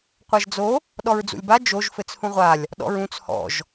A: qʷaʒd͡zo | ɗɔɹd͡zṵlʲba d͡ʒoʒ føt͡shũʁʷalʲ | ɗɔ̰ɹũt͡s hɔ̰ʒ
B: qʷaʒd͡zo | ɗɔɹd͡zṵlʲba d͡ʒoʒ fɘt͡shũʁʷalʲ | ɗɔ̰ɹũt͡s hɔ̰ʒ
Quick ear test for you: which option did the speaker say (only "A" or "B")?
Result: B